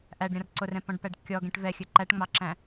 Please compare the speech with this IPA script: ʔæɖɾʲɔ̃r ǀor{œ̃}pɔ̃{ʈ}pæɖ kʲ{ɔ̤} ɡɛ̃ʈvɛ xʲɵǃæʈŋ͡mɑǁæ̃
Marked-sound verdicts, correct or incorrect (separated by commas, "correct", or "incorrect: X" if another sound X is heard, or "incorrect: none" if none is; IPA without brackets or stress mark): incorrect: ɛ̃, incorrect: ɖ, incorrect: ɔ